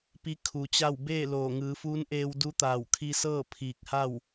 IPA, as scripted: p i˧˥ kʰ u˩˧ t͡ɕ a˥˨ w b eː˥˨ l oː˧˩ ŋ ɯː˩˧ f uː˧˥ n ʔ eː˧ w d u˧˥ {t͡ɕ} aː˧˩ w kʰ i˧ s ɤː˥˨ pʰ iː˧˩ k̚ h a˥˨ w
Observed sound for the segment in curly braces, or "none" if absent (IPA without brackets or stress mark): t̪